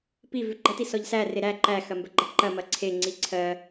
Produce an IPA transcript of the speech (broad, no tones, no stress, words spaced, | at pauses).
pivʉ ɡ͡ǃɐtisɔʎ sære ɾæ ǃæxɐmbɜɡ͡ǃɐ ǃɐmɐ ǀʰeŋ͡ǀi ǀʰɜ